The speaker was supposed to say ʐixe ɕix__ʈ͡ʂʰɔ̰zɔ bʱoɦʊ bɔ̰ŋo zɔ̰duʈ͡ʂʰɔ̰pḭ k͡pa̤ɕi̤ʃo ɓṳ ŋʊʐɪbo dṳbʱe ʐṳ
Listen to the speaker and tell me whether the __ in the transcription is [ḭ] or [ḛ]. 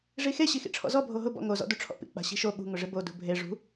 ḭ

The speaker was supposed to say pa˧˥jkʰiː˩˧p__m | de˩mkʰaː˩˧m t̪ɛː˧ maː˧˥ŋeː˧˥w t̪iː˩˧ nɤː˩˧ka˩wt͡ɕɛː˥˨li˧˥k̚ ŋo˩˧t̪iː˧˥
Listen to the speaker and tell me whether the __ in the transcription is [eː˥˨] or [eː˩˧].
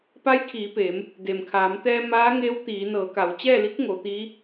eː˩˧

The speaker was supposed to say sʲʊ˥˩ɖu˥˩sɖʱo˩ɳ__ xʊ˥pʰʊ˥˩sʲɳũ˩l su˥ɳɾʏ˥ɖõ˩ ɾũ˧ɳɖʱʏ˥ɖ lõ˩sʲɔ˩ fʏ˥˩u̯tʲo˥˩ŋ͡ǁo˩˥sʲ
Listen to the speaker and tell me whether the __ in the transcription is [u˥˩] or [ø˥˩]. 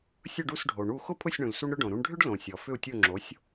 u˥˩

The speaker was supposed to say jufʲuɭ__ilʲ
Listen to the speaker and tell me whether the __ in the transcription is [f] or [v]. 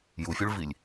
v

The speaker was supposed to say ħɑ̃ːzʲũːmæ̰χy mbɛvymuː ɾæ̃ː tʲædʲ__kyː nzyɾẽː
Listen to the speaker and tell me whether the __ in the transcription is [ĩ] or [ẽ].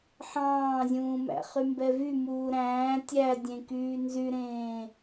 ẽ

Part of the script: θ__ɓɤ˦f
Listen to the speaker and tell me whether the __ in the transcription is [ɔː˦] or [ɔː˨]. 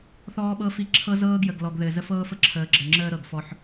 ɔː˦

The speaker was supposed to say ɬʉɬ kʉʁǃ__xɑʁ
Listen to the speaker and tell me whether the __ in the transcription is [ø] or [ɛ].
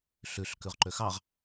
ø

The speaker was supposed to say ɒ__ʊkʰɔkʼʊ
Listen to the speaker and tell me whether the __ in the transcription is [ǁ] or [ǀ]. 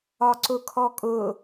ǀ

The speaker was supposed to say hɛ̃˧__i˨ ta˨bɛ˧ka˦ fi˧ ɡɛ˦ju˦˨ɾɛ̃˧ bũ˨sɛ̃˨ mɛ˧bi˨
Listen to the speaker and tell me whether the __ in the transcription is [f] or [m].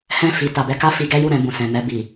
f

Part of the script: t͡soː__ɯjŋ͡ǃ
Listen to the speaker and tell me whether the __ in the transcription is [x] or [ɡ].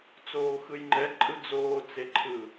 x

